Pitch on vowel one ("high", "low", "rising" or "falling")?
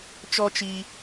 high